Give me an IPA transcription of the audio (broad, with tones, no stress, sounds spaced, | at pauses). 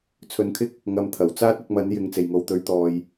t͡sʰ ɵ˨˧ n kʰ ɪ˥ k̚ | ŋ ɐ˨˧ m t̪ʰ ɐ˨˩ w t͡s aː˥ t̚ ɐ˧ k̚ m ɐ˨˥ n j ɪ˨˧ ŋ t͡s e˨˩ j ŋ o˨ w t̪ ɵ˨˥ ɥ t̪ ɔː˨ j